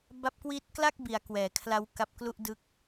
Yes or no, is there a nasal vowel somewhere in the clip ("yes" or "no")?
no